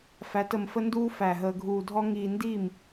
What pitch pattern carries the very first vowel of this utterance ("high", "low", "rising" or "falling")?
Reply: rising